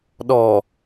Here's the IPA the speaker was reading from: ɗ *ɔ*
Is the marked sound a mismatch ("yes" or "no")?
no